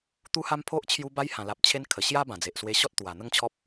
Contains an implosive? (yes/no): no